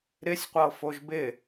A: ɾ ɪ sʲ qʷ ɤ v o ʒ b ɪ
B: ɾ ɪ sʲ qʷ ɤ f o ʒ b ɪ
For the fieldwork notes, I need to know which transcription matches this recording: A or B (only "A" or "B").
B